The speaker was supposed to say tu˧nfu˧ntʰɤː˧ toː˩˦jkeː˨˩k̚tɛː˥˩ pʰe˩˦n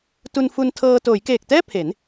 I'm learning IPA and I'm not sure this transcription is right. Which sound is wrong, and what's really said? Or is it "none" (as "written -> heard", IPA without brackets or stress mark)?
none